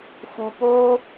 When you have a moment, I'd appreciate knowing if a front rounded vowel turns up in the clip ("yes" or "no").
no